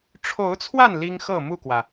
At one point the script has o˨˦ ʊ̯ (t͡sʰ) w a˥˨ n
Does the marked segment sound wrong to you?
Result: no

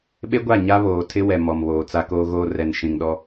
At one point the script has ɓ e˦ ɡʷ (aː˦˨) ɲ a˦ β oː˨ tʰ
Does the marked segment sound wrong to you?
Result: yes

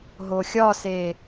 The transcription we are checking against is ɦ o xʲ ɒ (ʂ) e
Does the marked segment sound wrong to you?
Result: yes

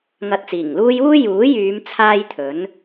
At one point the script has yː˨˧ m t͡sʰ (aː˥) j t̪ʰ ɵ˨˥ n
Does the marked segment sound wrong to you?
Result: no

